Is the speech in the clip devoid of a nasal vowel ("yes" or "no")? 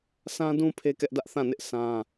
no